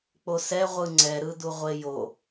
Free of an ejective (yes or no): yes